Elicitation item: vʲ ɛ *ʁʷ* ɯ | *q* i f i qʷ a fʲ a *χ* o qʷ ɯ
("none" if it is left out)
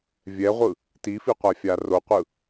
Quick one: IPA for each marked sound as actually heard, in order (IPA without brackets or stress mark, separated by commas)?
ʁʷ, t, r